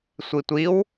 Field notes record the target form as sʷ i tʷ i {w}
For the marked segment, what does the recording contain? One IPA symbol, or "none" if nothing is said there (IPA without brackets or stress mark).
w